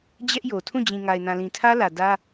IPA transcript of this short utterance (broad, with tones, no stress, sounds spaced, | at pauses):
d͡ʑ ɛ˦ ʔ j o˨ tʰ ũ˦˨ d͡ʑ ĩ˨ ŋ a˨ ɪ̯ n ã˨ l ĩ˨ tʰ ä˦ l ä˨ d ä˦